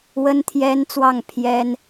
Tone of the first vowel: high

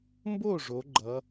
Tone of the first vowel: falling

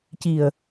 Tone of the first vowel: low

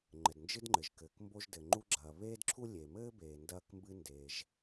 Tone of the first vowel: low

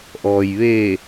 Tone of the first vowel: low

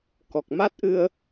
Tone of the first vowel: low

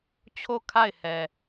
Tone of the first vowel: falling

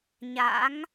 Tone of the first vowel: rising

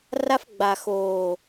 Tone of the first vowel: high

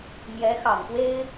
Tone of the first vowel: rising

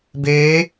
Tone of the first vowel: rising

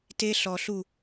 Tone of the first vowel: high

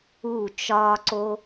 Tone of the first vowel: falling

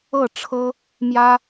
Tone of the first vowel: falling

